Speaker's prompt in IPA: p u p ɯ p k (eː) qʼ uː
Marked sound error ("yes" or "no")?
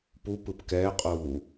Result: yes